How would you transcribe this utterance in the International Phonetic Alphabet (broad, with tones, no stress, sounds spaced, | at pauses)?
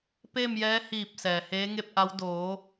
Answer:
p e˥˨ m j ɛː˧˥ h iː˧˩ p̚ s ɛː˩ h eː˧˥ ŋ e˥˨ p̚ ʔ a˧˥ w d oː˩˧